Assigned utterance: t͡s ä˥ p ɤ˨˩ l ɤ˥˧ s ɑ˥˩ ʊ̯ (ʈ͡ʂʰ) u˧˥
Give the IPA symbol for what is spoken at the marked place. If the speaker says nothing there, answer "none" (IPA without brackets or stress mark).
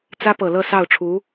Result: ʈ͡ʂʰ